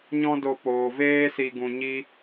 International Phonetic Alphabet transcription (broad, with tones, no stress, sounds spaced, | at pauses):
ɲ ɔ̃˦ d o˧ p oː˨ v eː˦ s i˧ ɡ ũ˧ ɲ i˦